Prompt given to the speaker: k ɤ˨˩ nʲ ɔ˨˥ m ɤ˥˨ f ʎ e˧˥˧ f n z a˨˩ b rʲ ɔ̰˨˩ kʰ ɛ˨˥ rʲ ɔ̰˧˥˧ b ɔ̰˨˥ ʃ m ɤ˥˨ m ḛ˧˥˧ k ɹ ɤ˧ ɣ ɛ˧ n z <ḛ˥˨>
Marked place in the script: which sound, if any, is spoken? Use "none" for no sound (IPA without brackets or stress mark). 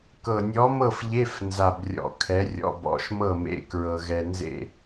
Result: ḛ˥˨